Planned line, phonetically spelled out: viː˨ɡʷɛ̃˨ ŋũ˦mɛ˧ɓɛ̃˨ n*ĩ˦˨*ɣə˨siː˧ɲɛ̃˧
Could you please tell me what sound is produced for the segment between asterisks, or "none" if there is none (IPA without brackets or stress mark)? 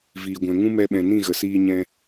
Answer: ĩ˦˨